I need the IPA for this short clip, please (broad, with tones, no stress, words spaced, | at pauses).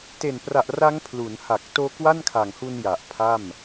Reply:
te˨˩npra˨˩ʔ ra˦˥ŋ pʰlu˩˦nha˨˩k̚ toː˦˥kwa˥˩nkʰa˨˩ŋhu˧n ja˨˩ʔpʰa˥˩m